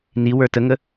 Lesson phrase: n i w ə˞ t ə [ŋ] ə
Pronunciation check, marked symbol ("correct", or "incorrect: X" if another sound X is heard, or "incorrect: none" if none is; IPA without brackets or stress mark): correct